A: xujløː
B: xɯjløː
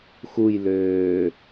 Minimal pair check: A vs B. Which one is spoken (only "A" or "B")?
A